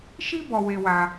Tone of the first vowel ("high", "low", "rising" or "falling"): high